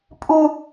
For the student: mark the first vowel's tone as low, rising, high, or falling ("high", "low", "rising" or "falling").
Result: high